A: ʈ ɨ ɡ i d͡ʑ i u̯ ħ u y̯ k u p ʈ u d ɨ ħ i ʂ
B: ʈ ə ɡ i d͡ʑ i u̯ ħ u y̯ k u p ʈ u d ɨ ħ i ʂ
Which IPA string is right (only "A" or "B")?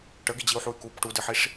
B